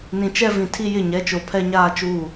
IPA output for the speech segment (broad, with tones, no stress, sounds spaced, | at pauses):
n ĩ˨ t͡ʃ ɛ˦ v ĩ˨ tʰ i˦ j ɪ˦˨ ɲ ɛ˨˦ t͡ʃ o˨ pʰ ɛ˦ ɲ aː˦ t͡ʃ uː˦˨